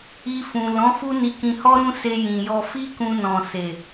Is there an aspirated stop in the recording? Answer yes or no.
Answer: no